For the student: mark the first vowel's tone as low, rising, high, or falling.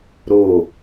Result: falling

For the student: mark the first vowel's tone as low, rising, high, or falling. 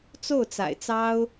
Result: falling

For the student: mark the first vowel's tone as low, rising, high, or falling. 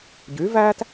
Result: rising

